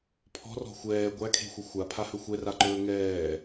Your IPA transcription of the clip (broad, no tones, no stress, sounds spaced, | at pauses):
pʰ ɔ̤ r ɔ̤ xʷ ɛː ɡʷ æ kʰ e̤ xʷ ə xʷ a pʰ a h ɵ xʷ ɛ r a ǃ ɵː ŋ ɛː